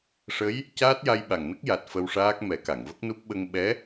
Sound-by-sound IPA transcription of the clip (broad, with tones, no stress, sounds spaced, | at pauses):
ʂ ə˧˥ j | c aː˦˥ t̚ j a˧ j ɓ a˨˩ ŋ n ə˦˥ k̚ j a˨˩ t̚ f ə˧ w ʂ aː˦˥ k̚ m ɛ˨˩˦ k a˨˩˨ ŋ v ə˦˥ k̚ n u˦˥ p̚ ɓ ə˧ ŋ ɓ ɛ˧˥